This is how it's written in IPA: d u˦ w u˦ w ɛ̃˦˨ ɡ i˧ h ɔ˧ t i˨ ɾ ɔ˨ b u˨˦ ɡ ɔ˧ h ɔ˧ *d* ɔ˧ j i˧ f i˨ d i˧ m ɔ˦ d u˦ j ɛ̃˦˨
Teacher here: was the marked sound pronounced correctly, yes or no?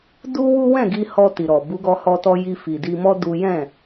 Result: no